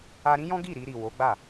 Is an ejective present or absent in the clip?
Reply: absent